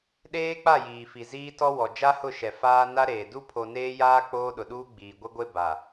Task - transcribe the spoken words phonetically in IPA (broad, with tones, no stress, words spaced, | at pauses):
ɗeː˦k͡pa˦˨jiː˨fi˨ ziː˦tɔ˦wɔ˨ d͡ʒa˦hʊ˦˨ʃɛ˨ faː˦ na˦ɾeː˨ du˦pʰo˨neː˦jaː˦ k͡poː˦ɗʊ˨ɗuː˦ ɡ͡biː˨ɡʷe˦ɡʷe˦ ba˨